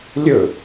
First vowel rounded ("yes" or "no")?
yes